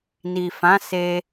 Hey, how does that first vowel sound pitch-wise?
low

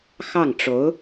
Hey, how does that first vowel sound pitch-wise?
falling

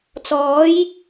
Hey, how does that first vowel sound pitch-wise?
rising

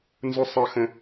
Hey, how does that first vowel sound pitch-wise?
high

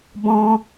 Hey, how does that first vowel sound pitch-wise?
high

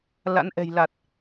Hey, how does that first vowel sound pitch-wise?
rising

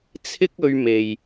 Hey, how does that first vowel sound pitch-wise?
high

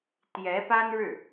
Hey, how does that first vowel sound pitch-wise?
rising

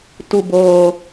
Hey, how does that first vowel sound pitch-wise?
low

